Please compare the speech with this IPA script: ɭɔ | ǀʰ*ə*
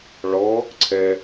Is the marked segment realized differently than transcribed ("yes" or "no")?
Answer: yes